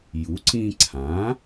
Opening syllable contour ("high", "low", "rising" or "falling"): rising